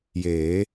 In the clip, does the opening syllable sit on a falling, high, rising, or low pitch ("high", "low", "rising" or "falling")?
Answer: rising